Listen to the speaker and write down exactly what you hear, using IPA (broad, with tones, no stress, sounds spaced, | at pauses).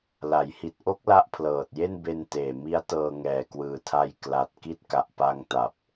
l a˩˦ j h i˨˩ t̚ ʔ o˦˥ k̚ l a˦˥ ʔ pʰ l ɤː˨˩ t̚ j e˥˩ n b e˧ n t eː˨˩ m i˦˥ a̯ t ɤː˧ ŋ ɛː˨˩ k w ɯː˨˩ tʰ a˧ j k l a˨˩ t̚ k i˥˩ t̚ k a˨˩ ʔ p a˧ ŋ t a˨˩ p̚